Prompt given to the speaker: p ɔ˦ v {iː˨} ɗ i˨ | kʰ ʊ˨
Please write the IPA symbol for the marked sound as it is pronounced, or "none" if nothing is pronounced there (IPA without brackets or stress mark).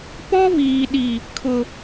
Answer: iː˨